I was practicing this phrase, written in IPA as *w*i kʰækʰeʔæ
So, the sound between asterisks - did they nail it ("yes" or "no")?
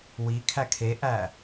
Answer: yes